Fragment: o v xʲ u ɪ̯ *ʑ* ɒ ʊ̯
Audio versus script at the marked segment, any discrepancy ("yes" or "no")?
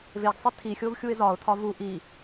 yes